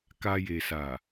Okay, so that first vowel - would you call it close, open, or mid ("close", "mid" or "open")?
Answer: open